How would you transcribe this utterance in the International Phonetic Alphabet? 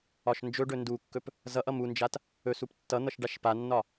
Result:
ɒ ʃ n d͡ʒ ɵ ɖ ɵ n d u kː ɵ p | z ʌ ʔ ʌ m u n d͡ʒ a t | ɵ s u p tː ʌ n̪ ʌ ʃ ɖ a ʃ p a nː ɒ

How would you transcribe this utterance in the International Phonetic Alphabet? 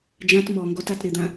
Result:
d͡ʒ ã t m ɔ ŋ ɡ ɔ t a t ɾ ɪ d̪ ã

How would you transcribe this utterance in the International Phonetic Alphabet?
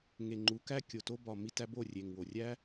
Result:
ŋ e˨ ŋ͡ǃ u˨˦ k æ˦ kʲ o˨ t o˧ b ɒ˨ m i˧ t æ˧ b o˦˨ rʲ e˨ ŋ w o˨ rʲ æ˦

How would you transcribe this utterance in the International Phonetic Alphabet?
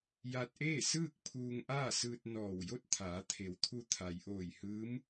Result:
j a˧ t̚ ʔ eː˥˨ s ɯː˥˨ k̚ pʰ uː˧ ŋ ʔ aː˥˨ s ɯː˧ t̚ n ɔː˧˩ w j o˥˨ t̚ t̪ʰ aː˩˧ t̪ʰ e˩˧ w t̪ʰ u˧ t̪ʰ a˩ j ʔ oː˧˩ j h ɯː˧˥ m

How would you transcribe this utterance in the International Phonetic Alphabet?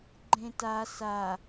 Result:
ɡ͡ǃ ẽ t a s a

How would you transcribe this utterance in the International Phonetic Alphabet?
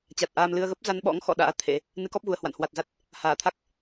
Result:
t͡ɕ a˨˩ t̚ ʔ aː˧ m l ɨ˧ ə̯ ɣ ə˦˥ p̚ z a˧ n ɓ ɔ̰˧˥ ŋ x ɔ̰˧˨ ɗ a̰ː˧˥ t̪ʰ ḛ˧˥ | n ɨ˨˦ k ɔ˦˥ p̚ ɣ u˨˩ ə̯ h w a̰˧˨ n h w a˨˩ t̚ z a˦˥ t̚ | h aː˧˩ t̪ʰ a˦˥ k̚

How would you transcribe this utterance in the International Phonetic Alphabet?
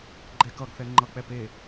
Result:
ɡ͡ǃ ɛ k ʌ ɡ θ ɛ ŋ͡ǃ ʌ k͡p ɛ p e

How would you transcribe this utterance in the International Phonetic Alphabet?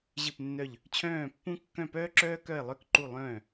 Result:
ʑ ɨ˥˩ p nː œ˥˩ ʎ | t͡ɕʰ œ̃ː˥˩ pː ũ˥ kː œ̃˥˩ p œː˥ ǁ œː˥ k œ˥˩ ɪ̯ lˠ œ˥˩ k ǃ u˥˩ lˠ œ̃ː˥˩

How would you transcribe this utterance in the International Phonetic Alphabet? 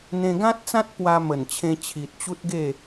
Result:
n̪ ẽ˧ ɡ ã˦ t̚ t͡s ã˦ t̚ p w a˧ m ə˨˩ n t͡ɕʰ ẽ˧ t͡ɕʰ i˨ t̚ t͡ɕ u˦ t̚ ɡ e˥˧

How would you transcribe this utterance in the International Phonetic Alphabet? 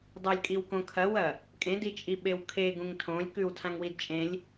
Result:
dˤ ɵ lʲ kʼ i w k õ kʰ ɐ w ɐ | kʼ ẽ d i t͡ʃʼ i ɓ e w kʰ e ɡ ũ ŋ tʰ õ lʲ k ʉ w tʰ ã ŋ w i d t͡ʃʼ ẽ lʲ

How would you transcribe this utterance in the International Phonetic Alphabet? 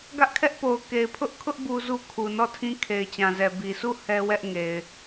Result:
ɡ ä˦ ʔ kʰ ɛ˦ ʔ p o˨ ʊ̯ k e˨ ɪ̯ pʰ ʊ˦ ʔ kʰ ʊ˦ ʔ b u˦ z u˦ kʰ u˨ n ɔ˦˨ tʰ ĩ˦ kʰ e˨ ɪ̯ t͡ɕ ã˨ z ɛ˨ b i˨ s u˦˨ h ɛ˦ w ɛ˦ ʔ ŋ e˨ ɪ̯

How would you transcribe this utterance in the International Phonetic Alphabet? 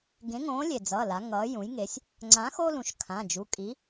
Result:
ɡ ẽ˨˥ ŋ õː˨˥ lʲ e˩ d͡z ʌː˩˧˩ l a˩˧ ŋ ʌː˩˧ j ũ˩˧ j ŋ e˩˧ sʲ | ŋ͡ǀ ã˨˥ x o˦ l ũ˩˧ ʃ kʰ ã˩˧˩ d͡ʒ u˩˧˩ kʼ i˨˥

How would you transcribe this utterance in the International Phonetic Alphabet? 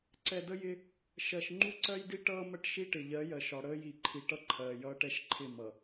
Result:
ǀ ɛ˨ d ə˦ j ɪ˦ | ʃ ɜ˨ ʃ ŋ͡ǃ u˦ ǀ ɜ˦ j d i˦ ʈ ʌː˦ m ə˦˨ ʈ ʃ i˦ ʈ ɪ˨ ʎ ɜ˨˦ j ɜ˨ ʃ ɒ˨ ɽ əː˦ j i˨ ǃʰ i˨ ʈ ʌ˦ ǃʰ ɜː˨ j ʌː˦ ʈ ɛ˦ ʃ ǃʰ ɪ˦˨ m ʌ˨

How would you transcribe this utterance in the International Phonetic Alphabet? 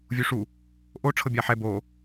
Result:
vʲ u ʂ u | ʔ o ʈ͡ʂʰ ɤ bʲ a ħ ɛ b o

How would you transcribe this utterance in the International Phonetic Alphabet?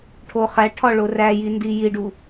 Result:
ʈʰ o χ æ ʈʰ ɒ ɭ o r æ j i n d i j i ɖ u

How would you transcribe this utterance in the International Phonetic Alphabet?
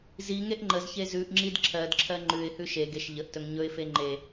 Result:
z i ŋ e ʔ ŋ͡ǃ ə z ç e z ʉ ʔ ŋ͡ǁ i d ǁʰ ɜ d ǁʰ ɜ ŋ͡ǃ ʉ ɪ̯ h ʉ ʃ e ɡ e ʃ ʎ ə ʔ t ɵ ŋ ɲ ɵ ɪ̯ f e ŋ͡ǃ e

